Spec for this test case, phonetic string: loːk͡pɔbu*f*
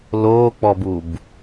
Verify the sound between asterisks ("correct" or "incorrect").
incorrect